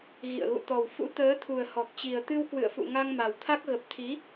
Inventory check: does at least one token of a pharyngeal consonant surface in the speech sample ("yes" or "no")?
no